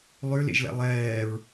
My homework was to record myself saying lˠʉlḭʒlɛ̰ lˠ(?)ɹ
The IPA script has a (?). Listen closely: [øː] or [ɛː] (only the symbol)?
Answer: ɛː